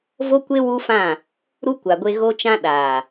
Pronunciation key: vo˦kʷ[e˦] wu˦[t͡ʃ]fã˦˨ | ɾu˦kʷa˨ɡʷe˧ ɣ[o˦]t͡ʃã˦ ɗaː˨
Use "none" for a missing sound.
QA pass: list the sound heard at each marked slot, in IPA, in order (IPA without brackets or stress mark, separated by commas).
e˦, none, o˦